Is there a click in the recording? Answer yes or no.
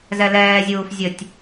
no